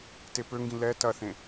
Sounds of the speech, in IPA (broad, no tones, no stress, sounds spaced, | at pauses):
t e p ø ŋ ɡ ĩ l ɛ t ɐ θ ẽ